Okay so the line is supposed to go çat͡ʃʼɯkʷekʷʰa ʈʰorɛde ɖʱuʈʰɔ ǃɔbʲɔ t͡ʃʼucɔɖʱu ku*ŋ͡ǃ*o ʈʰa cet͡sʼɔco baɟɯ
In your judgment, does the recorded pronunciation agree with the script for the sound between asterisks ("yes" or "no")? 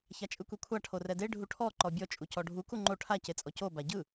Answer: yes